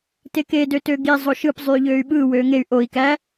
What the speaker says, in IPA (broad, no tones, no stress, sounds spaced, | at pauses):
t e k e d ø t ø ɡ i zˤ o ʃ ɯ p zˤ yː ʎ øː y̯ ɓ ɯː w øː ŋ e y̯ ʔ o i̯ k æ